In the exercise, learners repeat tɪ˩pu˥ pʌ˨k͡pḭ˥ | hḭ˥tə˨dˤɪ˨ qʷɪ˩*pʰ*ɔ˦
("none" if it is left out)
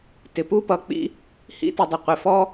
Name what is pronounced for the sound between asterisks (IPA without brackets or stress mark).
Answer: f